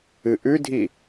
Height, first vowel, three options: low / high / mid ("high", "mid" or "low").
high